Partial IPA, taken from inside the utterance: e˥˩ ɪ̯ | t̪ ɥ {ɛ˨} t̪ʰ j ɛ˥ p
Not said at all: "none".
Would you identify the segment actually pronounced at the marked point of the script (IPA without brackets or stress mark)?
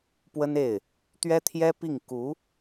ɛ˥